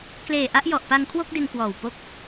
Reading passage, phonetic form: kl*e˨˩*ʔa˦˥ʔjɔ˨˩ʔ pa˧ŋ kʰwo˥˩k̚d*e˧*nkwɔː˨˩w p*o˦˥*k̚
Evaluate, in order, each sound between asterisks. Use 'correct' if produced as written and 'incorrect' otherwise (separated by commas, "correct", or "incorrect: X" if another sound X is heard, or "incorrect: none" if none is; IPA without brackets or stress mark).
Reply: incorrect: eː˨˩, correct, correct